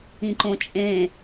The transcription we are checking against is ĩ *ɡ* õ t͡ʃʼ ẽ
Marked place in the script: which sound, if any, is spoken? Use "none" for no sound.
ǃ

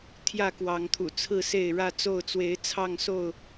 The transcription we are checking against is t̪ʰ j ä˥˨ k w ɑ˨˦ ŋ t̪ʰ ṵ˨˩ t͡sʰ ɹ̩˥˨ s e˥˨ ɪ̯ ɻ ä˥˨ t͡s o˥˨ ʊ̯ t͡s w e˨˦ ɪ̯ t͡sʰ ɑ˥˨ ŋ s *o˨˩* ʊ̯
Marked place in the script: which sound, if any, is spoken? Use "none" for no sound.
o˥˨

